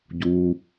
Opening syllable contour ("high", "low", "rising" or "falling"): low